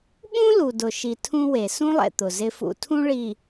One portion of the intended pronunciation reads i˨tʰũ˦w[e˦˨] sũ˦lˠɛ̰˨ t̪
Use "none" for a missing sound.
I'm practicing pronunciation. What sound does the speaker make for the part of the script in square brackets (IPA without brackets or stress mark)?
e˨